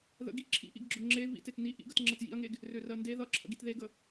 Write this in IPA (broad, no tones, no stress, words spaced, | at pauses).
ðə̰ɡi ǁʰḭʔḭɡɡ͡ǁʊ ŋ͡ǁe vḭ tetni ʔḭɡ ətŋ͡ǁʌt jḭɐ̯ŋeɡ | rørɜnde ðʌǁʰə̰ɡit ðeɡə